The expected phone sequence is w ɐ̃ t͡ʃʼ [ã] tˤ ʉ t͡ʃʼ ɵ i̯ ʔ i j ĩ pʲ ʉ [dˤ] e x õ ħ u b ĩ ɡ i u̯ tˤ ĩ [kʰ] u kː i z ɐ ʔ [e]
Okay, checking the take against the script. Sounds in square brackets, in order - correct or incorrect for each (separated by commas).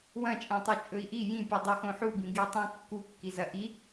correct, correct, incorrect, incorrect